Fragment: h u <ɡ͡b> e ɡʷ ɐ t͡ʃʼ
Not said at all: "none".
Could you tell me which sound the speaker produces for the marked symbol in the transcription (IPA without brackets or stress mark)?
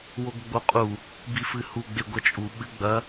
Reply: ɡ͡b